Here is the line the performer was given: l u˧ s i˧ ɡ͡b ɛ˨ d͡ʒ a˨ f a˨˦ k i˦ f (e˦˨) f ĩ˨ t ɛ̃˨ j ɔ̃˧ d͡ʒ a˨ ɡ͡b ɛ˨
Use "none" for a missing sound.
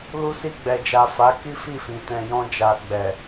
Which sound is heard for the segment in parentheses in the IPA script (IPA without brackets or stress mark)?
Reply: i˦˨